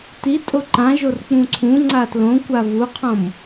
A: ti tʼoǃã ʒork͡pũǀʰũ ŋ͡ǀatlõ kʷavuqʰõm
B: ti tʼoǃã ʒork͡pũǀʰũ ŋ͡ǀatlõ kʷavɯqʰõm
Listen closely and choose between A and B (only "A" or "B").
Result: A